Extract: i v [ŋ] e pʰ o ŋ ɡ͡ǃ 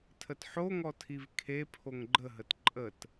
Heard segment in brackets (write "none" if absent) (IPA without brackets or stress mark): kʰ